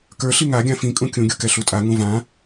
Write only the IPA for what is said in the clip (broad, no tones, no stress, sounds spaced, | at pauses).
k ə˞ ɬ i ŋ a ɡʲ ã f ĩ kʼ ũ kʲ ũ ɡʲ u k ɛ ɬ u tʼ a ŋ ũ v ã